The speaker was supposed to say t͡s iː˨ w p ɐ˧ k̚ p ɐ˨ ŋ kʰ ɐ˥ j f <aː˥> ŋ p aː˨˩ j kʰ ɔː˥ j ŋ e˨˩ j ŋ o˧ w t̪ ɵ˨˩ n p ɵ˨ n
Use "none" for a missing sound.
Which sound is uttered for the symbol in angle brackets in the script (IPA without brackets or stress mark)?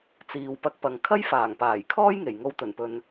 aː˨˩